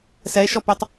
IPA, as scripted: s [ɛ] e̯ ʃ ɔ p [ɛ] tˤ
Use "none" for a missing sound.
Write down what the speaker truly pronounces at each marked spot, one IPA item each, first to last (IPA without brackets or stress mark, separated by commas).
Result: ɛ, ø